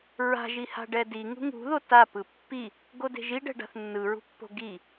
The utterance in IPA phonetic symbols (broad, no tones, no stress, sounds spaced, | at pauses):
ɹ a̤ ʒ i h a̤ ɖ ɛ d i ŋ ṳ ŋ ṳ ð o t a p ɯ pː i | ɡ o d e̤ ʒ i ɖ ɛ̤ ɖ a̤ θ nː ɯ ɹ ṳ pː o̤ ɡ i